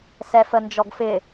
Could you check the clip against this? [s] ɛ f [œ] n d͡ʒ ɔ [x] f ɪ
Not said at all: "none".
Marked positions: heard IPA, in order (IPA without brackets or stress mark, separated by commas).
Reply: s, ə, ɡ